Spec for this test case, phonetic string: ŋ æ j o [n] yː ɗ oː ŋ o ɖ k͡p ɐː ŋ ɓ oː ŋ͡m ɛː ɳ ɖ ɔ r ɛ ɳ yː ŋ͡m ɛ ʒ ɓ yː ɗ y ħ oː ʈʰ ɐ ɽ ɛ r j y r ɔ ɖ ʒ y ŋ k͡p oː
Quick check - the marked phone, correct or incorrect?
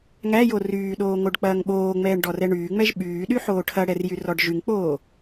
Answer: incorrect